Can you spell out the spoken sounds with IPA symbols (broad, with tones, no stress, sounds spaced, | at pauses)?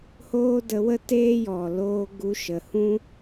h oː˦ d ə˧ w ə˦ t eː˦ j ɔ˨ l oː˧ ɡ u˧ ʃ ə˨ h ũ˦